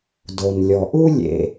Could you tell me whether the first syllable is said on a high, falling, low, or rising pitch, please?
low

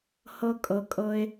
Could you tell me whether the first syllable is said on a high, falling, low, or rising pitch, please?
high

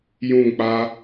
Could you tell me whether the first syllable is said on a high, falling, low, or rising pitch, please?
falling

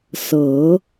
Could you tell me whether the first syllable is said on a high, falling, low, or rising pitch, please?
rising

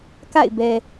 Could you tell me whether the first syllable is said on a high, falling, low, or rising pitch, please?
falling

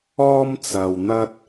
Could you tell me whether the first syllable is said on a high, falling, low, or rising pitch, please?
high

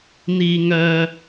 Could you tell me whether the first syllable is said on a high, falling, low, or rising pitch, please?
low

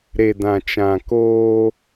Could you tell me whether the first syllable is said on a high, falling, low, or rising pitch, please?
low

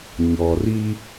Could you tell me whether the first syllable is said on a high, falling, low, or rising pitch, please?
low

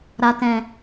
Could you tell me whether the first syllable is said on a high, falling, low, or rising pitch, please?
low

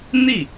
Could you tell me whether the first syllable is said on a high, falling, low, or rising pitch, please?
falling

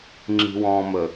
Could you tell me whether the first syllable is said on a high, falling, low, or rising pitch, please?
low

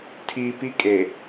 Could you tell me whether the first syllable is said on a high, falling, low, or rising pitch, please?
high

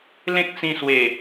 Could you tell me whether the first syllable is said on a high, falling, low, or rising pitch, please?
high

